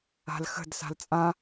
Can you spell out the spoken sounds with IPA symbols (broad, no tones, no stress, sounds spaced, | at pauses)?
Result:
a̤ l x ə̤ d s a̤ l t͡sʼ ã